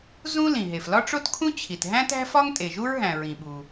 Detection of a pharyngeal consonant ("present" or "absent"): absent